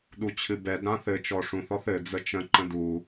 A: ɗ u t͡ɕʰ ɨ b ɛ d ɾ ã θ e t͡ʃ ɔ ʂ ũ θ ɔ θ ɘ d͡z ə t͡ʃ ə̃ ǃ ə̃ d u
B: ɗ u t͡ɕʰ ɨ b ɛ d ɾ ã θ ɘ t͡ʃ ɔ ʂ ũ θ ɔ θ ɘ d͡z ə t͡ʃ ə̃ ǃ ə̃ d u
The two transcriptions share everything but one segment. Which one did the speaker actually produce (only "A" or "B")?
B